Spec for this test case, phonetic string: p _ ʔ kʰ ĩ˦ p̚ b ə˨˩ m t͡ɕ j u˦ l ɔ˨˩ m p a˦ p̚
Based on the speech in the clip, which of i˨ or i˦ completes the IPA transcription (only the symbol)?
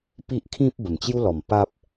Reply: i˦